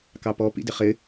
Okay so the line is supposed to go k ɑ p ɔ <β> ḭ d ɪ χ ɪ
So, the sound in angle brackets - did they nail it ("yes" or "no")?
no